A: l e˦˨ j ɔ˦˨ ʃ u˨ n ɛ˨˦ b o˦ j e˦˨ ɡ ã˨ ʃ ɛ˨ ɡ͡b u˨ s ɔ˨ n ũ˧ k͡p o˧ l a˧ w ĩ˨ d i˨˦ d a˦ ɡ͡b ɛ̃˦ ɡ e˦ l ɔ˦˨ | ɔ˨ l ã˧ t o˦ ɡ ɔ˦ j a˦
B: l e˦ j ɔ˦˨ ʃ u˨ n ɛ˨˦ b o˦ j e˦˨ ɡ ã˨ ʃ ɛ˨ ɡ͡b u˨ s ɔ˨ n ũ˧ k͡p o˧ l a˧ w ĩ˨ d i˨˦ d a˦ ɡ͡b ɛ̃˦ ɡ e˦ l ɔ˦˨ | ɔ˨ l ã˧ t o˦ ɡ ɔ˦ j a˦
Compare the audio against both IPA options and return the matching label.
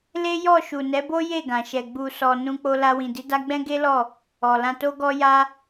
B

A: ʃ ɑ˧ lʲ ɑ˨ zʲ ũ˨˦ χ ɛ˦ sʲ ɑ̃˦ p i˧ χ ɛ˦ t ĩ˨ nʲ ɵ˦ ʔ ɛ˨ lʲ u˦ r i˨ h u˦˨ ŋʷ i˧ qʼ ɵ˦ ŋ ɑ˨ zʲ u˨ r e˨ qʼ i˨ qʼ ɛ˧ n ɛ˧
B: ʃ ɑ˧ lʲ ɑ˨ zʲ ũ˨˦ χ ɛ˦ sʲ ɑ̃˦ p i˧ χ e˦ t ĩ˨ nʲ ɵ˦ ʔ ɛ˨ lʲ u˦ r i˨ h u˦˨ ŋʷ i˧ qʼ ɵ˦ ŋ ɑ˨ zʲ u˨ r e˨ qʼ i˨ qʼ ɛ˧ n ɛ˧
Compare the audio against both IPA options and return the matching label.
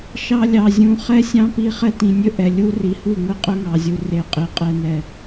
A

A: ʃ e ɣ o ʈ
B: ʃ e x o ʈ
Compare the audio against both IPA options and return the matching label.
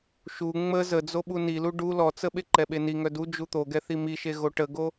A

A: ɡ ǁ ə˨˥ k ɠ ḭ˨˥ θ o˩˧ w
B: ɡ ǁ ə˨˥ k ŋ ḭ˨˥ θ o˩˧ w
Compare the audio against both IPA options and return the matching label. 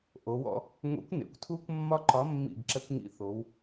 B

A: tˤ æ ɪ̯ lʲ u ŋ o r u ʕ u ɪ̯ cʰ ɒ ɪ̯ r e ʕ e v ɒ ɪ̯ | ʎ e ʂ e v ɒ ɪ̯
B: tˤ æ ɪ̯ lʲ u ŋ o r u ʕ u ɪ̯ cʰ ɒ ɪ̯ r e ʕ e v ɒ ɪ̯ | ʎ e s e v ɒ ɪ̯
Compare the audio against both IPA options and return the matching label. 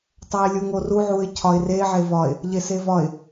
B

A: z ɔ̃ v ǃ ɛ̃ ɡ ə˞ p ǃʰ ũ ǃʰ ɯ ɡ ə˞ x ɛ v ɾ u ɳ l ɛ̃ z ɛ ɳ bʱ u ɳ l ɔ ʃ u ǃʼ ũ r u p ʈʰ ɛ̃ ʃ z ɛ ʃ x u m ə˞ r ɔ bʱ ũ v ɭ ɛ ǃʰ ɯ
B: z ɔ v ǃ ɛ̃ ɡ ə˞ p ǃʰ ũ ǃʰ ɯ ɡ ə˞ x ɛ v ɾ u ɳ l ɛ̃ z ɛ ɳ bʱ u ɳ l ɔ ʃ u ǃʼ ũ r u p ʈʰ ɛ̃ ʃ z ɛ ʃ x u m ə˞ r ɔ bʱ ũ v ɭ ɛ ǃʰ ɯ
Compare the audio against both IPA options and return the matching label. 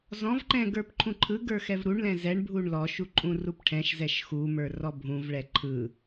A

